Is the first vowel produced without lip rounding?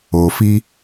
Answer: no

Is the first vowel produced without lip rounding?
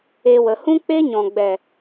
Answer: yes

